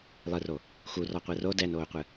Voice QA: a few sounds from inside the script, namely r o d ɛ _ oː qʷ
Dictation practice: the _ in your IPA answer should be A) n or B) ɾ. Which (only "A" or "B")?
A